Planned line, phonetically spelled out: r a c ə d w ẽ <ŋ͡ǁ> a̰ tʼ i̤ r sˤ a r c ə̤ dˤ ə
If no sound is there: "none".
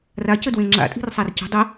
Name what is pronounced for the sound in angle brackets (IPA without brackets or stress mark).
ŋ͡ǁ